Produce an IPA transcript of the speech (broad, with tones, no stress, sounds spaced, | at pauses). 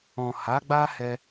ɔ̃˨ h a˨˦ ɡ͡b a˦ h ɛ˧